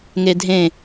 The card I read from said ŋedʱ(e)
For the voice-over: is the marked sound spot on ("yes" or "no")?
no